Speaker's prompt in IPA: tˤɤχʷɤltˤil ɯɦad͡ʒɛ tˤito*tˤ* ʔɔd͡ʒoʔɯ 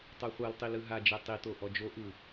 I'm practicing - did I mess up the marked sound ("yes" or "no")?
yes